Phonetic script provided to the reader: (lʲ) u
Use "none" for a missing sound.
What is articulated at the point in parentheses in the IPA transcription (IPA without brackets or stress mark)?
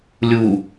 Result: lʲ